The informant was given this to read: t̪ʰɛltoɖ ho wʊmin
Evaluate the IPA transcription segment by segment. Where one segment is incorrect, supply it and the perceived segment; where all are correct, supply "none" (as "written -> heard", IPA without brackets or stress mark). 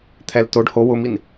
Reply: none